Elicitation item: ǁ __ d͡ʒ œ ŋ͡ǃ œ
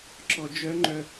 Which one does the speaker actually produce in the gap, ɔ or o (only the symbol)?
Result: ɔ